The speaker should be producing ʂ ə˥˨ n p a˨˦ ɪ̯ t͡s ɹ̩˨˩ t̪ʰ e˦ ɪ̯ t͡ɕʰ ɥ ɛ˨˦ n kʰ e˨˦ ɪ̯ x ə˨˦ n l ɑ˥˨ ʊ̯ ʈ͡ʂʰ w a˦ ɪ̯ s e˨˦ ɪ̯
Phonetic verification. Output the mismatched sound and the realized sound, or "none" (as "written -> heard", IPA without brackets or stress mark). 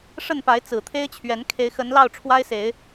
none